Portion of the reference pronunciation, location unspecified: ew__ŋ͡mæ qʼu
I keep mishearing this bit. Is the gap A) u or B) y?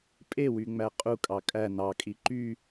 B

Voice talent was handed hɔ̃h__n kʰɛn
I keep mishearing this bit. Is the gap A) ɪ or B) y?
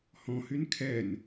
B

